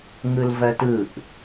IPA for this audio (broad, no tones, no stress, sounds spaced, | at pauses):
ŋ ɯ l v ɜ t ɯ ʔ